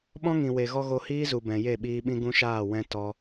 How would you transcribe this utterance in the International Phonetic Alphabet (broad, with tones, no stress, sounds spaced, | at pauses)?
ɓ ɔ̃˦ ŋ ĩ˨ w e˨ ɣ ɔ˧ ɣ o˧ h iː˦ z u˨ b ɛ̃˨ j e˦˨ ɓ iː˧ ɓ ĩ˦ ɡ ũ˦ ʃ aː˦˨ w ɛ̃˦ t ɔ˦